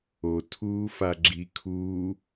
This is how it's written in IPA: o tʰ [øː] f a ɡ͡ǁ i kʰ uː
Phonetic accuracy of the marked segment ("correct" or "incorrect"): incorrect